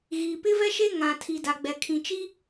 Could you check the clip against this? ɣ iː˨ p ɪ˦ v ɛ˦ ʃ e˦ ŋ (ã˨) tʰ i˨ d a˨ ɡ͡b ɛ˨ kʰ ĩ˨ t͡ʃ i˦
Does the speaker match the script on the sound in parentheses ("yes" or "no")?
yes